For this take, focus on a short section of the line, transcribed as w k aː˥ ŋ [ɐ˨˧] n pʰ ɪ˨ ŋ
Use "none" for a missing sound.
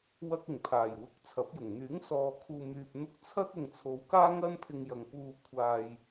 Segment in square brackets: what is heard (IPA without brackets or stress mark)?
ɐ˧